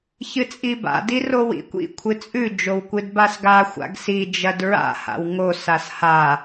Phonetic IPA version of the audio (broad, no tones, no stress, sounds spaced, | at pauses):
ç ɨ t͡sʼ i b a̰ d i r o w ḭ kʷ ḭ kʷʰ ɨ t͡sʼ ʉ d͡ʒ o w kʷ ɨ d b a s ɡ a xʷ a̰ ɡ s i d͡ʒ ɐ d ɹ a̰ h a̰ w ŋ o s a s h a